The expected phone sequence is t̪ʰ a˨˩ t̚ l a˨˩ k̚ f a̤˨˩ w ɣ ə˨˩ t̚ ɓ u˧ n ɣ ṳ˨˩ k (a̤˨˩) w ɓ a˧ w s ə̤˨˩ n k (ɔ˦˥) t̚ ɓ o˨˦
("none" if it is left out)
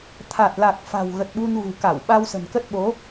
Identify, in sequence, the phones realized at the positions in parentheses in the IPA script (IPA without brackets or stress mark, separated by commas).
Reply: a˧˩, ə˦˥